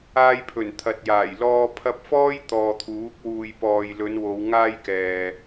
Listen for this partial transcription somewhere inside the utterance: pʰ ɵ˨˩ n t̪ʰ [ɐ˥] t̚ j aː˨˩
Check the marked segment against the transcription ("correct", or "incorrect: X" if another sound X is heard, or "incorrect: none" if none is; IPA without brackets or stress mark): incorrect: ɐ˨